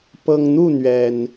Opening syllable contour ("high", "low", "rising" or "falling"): low